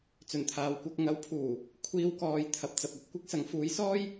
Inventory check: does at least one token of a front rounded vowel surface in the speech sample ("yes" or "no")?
no